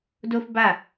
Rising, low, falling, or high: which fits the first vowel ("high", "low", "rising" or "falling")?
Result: high